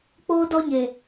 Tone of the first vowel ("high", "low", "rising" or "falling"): high